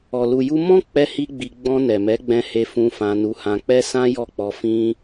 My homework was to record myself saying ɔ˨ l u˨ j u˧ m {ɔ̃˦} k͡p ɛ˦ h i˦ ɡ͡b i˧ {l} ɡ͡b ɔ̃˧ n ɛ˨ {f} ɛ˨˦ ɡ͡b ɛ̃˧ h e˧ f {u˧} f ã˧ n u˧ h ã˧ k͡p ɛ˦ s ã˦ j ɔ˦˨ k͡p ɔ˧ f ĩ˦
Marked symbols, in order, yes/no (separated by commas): yes, no, no, no